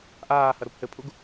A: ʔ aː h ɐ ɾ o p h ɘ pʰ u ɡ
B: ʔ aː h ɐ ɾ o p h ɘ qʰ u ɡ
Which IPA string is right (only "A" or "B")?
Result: A